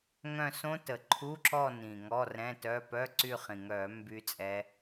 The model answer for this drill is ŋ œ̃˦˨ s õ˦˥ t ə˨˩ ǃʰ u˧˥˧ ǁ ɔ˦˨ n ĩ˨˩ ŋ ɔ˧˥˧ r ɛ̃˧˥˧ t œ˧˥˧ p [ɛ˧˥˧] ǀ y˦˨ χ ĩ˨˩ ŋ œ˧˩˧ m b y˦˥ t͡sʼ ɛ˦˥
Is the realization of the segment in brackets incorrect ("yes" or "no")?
yes